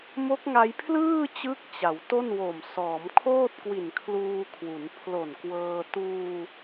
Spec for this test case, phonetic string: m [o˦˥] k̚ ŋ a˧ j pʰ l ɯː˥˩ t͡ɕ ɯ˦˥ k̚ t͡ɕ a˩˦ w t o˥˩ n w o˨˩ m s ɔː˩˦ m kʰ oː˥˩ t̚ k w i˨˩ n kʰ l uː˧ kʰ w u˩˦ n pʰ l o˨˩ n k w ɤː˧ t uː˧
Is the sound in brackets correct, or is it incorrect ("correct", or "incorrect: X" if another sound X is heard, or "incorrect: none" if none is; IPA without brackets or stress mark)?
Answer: correct